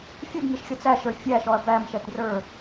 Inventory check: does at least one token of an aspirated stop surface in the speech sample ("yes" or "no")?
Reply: no